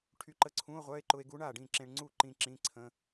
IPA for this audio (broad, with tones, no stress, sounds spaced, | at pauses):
ʈʰ y˧ ǃ ə˧˥˧ ǀʰ ũ˧˥˧ o̯ ʁʷ œ˧˥˧ e̯ ǃ ʊ˧ e̯ ɡ u˧˥ ɳ a˥˩ ɖ ĩ˥˩ ǁ ẽ˧ ɳ ŋ͡ǀ u˥˩ ǃ ĩ˧ ǁ ĩ˧˥˧ ǀʰ ə̃˧˥˧